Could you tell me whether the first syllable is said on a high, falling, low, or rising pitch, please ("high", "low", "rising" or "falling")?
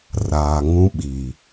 low